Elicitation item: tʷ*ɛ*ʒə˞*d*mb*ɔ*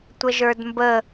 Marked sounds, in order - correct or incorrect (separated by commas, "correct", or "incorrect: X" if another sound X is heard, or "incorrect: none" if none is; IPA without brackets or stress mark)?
incorrect: ə, correct, incorrect: ə